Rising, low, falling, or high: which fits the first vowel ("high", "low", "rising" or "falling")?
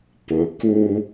low